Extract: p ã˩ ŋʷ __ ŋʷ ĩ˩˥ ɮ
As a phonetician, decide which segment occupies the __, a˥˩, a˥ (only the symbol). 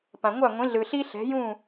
a˥˩